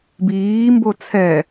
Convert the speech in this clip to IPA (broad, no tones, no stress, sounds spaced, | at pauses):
b iː m b o t͡sʰ ɛ